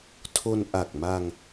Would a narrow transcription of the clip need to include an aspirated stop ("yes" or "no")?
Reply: yes